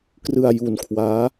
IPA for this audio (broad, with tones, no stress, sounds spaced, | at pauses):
k r ɯ˧ a̯ j u˧ n kʰ w aː˦˥